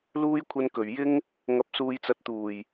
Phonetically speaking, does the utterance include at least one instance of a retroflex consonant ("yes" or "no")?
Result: no